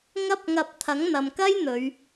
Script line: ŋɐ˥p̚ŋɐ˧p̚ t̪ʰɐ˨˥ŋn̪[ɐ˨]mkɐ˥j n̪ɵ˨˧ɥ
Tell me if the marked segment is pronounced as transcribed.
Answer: yes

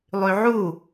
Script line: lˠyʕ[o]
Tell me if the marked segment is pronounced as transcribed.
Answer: no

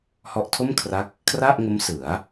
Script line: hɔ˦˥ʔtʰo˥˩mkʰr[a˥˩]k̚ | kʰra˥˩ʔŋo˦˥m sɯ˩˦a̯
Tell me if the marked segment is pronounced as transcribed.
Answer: no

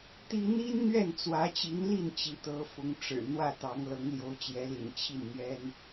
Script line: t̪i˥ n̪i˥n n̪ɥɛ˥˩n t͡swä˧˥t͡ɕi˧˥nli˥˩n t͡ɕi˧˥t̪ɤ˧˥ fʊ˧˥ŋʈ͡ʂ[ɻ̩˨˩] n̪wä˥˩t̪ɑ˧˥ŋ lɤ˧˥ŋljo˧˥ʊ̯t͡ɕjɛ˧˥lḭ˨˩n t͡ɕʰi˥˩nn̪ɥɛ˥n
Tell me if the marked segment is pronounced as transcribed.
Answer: yes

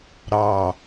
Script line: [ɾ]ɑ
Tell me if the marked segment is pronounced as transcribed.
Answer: yes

